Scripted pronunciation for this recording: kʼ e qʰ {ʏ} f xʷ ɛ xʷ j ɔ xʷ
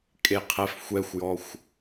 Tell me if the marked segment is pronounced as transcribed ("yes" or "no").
no